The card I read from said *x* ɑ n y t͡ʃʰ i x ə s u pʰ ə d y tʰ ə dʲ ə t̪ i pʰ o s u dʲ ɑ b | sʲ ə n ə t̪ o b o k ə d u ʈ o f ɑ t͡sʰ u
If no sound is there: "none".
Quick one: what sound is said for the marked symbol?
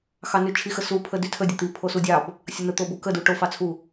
x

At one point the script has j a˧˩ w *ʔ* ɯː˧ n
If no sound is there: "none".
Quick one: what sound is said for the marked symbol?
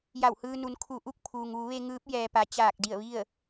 h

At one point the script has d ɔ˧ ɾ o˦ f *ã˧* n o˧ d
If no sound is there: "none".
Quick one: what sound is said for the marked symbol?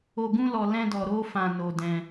ã˧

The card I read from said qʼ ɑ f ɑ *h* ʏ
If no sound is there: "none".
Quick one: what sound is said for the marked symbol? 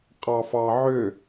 ʕ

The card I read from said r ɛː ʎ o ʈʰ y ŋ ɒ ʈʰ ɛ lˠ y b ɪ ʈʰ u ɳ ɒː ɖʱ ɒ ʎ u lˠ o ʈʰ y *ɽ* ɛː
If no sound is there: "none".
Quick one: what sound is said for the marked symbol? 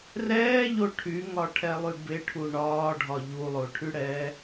ɽ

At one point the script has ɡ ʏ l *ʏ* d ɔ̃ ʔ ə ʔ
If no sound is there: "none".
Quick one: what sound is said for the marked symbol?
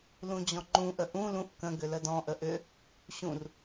ə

